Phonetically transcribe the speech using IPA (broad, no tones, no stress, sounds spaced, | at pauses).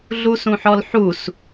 ɮ u s ũ ħ ɔ l ħ u s